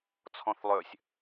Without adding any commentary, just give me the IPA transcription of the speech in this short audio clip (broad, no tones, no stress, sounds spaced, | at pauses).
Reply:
t͡sʰ ɔ̃ θ lˠ ø sʲ